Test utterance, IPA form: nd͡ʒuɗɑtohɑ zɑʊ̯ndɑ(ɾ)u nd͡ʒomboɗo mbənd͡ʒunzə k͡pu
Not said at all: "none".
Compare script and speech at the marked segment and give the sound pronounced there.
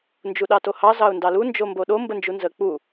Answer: l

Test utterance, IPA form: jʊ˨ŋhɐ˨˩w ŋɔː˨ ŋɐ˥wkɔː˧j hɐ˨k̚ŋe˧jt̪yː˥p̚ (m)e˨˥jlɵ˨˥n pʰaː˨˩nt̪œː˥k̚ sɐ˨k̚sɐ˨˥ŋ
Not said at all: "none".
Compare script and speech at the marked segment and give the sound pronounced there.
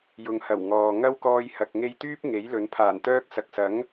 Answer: ŋ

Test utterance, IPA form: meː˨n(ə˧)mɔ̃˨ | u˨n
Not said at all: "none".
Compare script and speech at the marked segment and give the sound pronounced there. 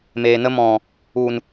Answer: ə˧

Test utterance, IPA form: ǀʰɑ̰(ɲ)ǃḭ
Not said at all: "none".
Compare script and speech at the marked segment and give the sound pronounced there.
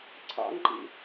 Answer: ŋ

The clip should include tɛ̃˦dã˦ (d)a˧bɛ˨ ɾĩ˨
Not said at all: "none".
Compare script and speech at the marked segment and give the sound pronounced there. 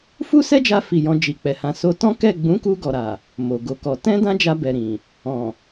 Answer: d͡ʒ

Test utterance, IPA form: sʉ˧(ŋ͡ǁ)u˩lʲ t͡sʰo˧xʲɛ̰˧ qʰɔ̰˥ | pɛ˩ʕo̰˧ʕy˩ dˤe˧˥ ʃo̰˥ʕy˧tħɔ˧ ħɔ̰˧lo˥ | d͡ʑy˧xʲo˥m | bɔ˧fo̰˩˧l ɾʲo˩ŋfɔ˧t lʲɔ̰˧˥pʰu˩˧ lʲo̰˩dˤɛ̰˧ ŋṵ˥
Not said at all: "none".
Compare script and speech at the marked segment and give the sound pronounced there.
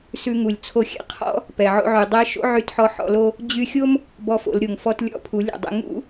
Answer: ŋ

